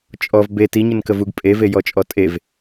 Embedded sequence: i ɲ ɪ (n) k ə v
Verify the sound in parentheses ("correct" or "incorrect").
correct